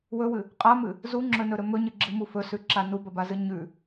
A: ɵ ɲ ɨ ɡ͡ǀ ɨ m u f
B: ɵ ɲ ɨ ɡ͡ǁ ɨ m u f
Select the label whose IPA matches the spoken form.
B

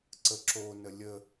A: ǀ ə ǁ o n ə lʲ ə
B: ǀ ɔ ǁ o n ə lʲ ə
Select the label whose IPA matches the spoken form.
A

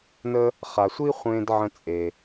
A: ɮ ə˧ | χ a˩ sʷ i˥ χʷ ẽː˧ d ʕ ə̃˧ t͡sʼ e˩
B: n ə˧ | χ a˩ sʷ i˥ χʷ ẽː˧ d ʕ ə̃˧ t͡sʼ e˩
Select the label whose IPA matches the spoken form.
B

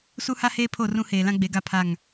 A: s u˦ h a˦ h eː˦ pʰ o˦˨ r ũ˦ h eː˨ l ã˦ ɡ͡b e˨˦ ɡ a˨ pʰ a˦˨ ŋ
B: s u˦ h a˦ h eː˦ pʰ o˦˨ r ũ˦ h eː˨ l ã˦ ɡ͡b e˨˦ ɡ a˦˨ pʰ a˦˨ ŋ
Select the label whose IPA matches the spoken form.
B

